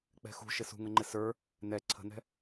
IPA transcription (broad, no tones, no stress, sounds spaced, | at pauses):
k͡p ɛ̤ x ṳ ʃ ɪ s ṳ ŋ ə ŋ͡ǃ ɪ s ə˞ | n ɛ ǀʰ ə̤ n ɛ̤